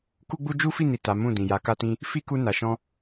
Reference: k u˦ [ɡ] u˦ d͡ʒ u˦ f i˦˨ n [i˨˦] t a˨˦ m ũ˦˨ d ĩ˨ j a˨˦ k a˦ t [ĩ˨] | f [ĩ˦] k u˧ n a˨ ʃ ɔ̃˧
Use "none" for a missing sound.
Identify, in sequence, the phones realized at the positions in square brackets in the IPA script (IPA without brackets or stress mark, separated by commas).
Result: ɡ͡b, i˨, ĩ˧, i˦